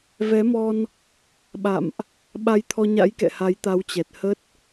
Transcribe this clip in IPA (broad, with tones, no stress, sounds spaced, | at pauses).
v ɛ˨˦ m ɔ˧ n | ɓ a̰˧˨ m ʔ | ɓ a˧ j t̪ʰ ɔ˧ ɲ a̰˧˥ j k ɛ̰˧˨ h a˨˦ j t̪ a˨˦ w t͡ɕ ɛ˨˩ t̚ h ə˦˥ t̚